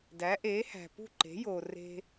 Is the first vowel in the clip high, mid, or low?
low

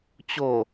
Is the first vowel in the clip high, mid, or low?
mid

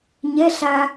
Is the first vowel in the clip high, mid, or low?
mid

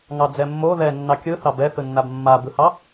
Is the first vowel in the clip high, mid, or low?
low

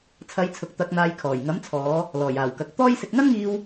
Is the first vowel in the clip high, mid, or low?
low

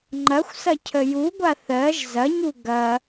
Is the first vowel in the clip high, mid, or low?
low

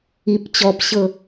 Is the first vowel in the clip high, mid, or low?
high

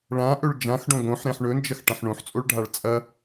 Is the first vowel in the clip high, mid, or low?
low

